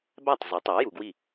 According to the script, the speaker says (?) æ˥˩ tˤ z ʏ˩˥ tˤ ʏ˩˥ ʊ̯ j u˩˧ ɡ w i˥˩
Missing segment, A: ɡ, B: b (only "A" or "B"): B